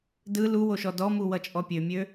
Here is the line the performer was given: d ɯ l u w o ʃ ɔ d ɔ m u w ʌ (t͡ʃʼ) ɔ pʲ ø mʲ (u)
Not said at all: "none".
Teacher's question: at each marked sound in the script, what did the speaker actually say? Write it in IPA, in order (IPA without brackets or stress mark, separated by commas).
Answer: t͡ʃʼ, ø